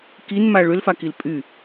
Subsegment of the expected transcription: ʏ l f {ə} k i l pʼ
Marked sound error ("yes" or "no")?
yes